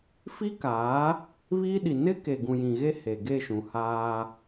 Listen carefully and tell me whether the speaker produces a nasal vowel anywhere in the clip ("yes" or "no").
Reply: yes